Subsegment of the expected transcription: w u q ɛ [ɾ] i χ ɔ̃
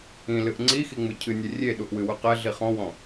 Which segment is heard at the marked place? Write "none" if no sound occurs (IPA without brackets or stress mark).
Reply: ɮ